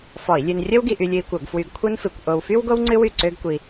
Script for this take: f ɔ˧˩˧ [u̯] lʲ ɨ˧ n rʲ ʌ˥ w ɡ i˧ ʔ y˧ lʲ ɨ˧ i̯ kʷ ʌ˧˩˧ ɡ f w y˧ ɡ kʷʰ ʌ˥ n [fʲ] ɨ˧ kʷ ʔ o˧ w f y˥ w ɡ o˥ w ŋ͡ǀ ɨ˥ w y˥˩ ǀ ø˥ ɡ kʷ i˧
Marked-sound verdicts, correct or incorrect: incorrect: i̯, incorrect: f

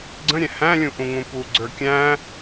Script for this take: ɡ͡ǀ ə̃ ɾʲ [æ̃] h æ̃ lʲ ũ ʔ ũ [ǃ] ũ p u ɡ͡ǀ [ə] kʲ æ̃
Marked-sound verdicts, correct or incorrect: incorrect: ɛ̃, incorrect: ŋ, incorrect: ə˞

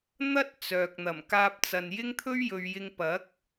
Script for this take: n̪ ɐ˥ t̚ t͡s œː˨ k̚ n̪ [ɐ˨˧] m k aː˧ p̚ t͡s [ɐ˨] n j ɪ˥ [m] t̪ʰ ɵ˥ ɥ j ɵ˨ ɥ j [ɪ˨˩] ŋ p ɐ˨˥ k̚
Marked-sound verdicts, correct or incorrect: incorrect: ɐ˨˩, correct, incorrect: ŋ, incorrect: ɪ˧

